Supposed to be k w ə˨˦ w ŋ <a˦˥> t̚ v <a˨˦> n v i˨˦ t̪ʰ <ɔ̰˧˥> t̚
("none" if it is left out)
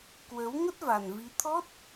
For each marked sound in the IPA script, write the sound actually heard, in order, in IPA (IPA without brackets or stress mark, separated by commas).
ə˦˥, a˨˩, ɔ˦˥